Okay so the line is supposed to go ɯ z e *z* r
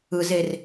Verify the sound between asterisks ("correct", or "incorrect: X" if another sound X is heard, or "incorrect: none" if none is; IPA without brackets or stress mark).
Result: incorrect: none